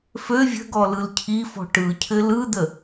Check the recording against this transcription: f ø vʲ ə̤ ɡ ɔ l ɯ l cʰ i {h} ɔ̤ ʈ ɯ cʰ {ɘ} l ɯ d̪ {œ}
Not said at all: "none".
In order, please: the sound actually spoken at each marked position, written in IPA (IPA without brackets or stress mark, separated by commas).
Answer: f, ɘ, ə